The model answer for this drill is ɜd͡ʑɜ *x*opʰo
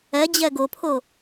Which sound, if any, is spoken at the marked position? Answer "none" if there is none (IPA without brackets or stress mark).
ɡ